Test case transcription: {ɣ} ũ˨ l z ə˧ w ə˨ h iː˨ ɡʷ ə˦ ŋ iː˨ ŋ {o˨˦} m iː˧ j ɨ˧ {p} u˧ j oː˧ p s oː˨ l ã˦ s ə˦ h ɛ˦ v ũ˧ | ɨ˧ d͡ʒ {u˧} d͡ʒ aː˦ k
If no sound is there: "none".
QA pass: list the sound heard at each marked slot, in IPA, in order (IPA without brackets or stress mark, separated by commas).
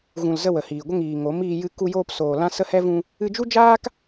ɣ, o˨˦, k, u˦